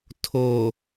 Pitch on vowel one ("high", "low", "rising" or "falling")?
low